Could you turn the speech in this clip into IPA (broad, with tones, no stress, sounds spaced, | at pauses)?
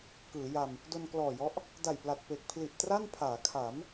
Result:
k ɯː˩˦ j a˧ m | d o˧ n k l ɔː˨˩ j ɔ˦˥ ʔ | d a˨˩ j p l a˨˩ t̚ p e˨˩ k̚ pʰ l i˨˩ ʔ t r a˥˩ n pʰ aː˩˦ kʰ a˩˦ m